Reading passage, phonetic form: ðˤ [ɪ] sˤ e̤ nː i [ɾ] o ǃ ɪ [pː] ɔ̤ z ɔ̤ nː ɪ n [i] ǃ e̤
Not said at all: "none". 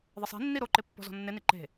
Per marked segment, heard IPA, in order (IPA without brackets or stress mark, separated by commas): ɪ, ɾ, pː, i